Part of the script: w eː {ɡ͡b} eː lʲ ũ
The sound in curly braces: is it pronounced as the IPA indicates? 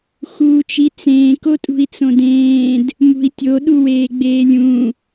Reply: yes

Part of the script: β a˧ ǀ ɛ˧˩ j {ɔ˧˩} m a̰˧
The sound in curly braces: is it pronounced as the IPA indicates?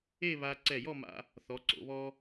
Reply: no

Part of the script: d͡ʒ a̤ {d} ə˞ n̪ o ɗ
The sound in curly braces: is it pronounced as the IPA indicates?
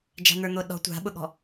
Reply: no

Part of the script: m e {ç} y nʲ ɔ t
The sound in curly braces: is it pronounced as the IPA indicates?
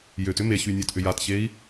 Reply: yes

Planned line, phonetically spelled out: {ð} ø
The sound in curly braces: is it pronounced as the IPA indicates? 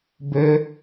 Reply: no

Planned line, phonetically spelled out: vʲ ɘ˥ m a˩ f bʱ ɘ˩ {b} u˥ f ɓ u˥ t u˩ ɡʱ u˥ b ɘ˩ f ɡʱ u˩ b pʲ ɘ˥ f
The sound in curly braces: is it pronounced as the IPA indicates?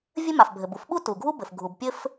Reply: yes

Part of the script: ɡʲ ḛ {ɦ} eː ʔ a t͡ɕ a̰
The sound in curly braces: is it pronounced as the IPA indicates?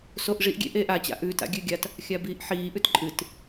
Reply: no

